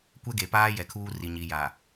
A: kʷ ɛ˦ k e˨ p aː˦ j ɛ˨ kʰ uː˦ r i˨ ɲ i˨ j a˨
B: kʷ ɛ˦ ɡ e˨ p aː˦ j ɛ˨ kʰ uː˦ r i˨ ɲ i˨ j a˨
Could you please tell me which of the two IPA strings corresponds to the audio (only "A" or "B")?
B